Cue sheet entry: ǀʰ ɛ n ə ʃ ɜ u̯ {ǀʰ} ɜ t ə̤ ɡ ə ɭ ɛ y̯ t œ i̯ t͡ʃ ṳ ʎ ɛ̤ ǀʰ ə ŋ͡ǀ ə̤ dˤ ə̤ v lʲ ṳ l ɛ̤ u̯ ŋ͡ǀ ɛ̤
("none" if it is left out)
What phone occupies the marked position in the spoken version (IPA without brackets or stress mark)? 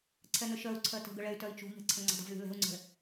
ǀʰ